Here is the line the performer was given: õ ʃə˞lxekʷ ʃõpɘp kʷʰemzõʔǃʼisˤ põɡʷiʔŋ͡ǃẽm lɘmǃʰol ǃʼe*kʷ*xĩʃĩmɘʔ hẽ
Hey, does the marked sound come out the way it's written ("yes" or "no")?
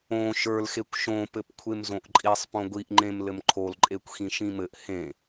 yes